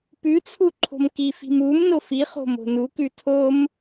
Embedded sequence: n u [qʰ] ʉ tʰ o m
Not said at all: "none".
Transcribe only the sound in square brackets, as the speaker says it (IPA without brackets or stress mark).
k